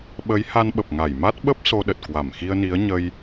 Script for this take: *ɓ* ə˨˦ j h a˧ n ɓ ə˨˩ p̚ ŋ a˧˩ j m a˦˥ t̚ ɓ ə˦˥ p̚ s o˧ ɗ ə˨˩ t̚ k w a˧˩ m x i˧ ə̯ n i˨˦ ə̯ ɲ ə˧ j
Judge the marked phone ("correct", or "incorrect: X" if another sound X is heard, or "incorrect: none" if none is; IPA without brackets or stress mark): correct